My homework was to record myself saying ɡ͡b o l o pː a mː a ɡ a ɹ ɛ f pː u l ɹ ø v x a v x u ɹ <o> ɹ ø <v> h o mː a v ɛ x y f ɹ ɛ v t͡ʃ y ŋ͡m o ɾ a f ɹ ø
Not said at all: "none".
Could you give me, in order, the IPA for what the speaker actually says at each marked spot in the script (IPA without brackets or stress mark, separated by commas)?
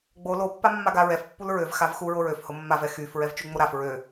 o, f